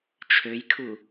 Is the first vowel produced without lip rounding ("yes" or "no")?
no